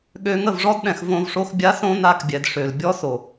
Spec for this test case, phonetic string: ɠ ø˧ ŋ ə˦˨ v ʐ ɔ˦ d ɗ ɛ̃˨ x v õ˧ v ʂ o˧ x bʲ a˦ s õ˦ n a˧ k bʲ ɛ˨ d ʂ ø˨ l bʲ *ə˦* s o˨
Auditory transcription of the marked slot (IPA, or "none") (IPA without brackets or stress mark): ɔ˦